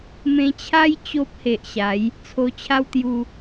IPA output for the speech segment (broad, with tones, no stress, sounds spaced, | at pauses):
m ẽ˧ t͡ɕʰ a˦ j t͡ɕ o˦ p̚ h e˨ ʔ ɕ a˨˦ j | t͡sʰ o˧ t͡ɕʰ a˦ w t̪ j u˧